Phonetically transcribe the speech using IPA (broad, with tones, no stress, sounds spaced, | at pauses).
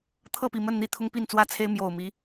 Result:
t̪ʰ ɤ˥˨ p i˨˩ m ə˥˨ n n̪ i˥˨ t̪ʰ ʊ˦ ŋ p i˥˨ n t͡s w ä˥˨ t͡sʰ e˦ ɪ̯ m j o˨˩ ʊ̯ m i˨˦